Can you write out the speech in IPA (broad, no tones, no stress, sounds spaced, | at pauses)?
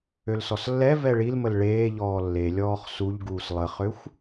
ø l s ɔ s lː ɛ v ɛ ɭ i l m ə l ɭ eː ʎ ɔː lː e lʲ ɔː χ s u ʎ ɡ uː s lˠ ə χ ø xʷ